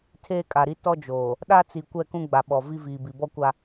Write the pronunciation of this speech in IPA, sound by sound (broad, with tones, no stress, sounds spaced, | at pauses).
tʰ eː˦ kʼ a˨ ɾ i˦ t ɔ˦ d͡ʒ oː˨ | ɗ a˦ t͡s i˨ kʷ ɛ˦˨ k ũ˦ ɡ͡b a˨ ɓ ɔ˨ v i˦ v iː˨ b i˨ b ɔ˦ kʷ a˦